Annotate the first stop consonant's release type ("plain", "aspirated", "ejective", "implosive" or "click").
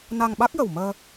implosive